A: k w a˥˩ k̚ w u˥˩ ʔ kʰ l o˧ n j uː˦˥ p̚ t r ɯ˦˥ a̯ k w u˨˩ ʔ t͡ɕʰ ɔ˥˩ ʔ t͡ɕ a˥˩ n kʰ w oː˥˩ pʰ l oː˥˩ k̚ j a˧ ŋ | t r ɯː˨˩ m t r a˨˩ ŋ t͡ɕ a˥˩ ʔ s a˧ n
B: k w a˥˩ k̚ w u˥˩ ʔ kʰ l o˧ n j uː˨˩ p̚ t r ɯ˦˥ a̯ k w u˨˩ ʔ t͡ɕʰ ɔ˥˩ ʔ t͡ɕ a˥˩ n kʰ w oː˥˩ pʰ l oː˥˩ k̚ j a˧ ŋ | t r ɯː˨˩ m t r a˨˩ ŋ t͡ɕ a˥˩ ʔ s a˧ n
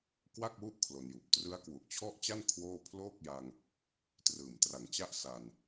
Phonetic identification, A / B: B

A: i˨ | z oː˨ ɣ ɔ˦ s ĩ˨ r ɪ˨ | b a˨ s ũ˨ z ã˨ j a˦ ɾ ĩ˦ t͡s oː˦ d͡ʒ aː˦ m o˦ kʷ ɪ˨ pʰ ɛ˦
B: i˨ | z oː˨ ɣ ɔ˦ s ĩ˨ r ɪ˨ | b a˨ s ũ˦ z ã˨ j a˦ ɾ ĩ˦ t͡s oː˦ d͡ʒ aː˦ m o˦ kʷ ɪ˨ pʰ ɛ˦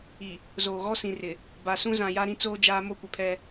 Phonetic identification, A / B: B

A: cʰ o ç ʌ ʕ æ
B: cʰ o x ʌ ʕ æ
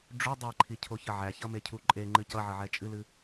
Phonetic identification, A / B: A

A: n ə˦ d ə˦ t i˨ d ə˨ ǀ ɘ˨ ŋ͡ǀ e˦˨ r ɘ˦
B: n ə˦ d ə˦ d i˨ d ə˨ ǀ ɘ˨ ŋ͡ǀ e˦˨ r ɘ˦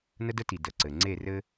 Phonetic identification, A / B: A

